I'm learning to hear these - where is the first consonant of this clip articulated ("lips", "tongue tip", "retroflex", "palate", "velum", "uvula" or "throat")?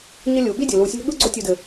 palate